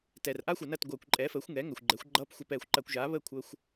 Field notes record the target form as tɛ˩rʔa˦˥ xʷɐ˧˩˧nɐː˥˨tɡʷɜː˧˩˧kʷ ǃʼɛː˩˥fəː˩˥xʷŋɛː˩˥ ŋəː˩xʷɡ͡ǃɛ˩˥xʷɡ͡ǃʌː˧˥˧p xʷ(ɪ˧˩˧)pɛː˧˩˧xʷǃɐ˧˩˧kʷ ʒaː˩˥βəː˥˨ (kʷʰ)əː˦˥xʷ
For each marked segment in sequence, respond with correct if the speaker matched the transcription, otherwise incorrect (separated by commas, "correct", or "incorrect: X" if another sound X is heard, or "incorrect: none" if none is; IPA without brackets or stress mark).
incorrect: ɛ˧˩˧, correct